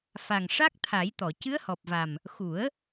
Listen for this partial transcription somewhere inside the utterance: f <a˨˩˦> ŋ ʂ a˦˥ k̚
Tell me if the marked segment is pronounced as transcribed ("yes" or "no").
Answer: no